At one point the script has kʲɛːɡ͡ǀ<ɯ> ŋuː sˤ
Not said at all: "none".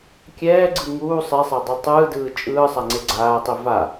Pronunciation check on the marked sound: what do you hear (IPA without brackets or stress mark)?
ɯ